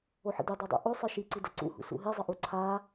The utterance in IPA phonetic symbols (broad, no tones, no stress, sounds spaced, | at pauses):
o ħ ə̰ d y dˤ u dˤ ṵ ʔ o sˤ i ʃ i ǀ i d ə ǀ ṵ h ṵ s ṵ ɦ i zˤ ə ʔ u ǀʰ a